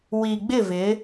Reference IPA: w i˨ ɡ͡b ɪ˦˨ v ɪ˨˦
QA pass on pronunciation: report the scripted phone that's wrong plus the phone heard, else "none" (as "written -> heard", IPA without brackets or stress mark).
none